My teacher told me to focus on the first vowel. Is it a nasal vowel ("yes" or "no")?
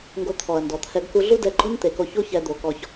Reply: no